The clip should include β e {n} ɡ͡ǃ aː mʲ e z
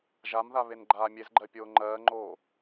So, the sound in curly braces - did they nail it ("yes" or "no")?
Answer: yes